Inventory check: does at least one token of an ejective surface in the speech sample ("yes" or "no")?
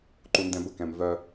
no